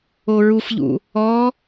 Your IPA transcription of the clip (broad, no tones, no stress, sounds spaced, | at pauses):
o ɹ u f ʎ ṵ | ɔ